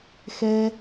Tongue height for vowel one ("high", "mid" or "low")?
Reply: mid